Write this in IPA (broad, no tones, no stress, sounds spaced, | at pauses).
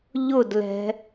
ʎ ʊ d l ɛ̤